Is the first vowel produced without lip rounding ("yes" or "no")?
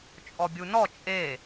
no